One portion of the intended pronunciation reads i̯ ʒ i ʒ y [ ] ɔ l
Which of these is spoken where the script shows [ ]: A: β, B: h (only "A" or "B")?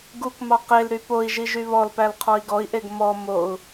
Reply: A